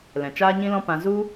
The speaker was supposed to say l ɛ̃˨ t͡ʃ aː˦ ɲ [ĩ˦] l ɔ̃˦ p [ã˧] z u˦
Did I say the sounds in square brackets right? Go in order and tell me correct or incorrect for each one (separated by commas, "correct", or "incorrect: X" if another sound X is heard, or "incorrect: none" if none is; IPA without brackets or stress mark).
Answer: correct, correct